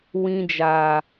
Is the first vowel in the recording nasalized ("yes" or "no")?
yes